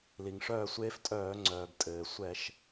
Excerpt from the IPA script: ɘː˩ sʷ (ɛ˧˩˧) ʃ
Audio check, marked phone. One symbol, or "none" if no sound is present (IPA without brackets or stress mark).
ɛ˧˩˧